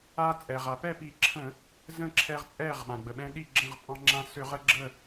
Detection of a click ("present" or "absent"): present